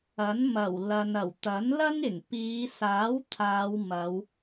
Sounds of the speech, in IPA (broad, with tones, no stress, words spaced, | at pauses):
ɐ˨˥nmɐ˨˩w lɐ˨nɐ˨˩w t̪ɐ˨˥nlɐ˥ŋ ɪ˨˩ŋpiː˨˧saː˨˥w t̪ʰaː˨˧wmɐ˨˧w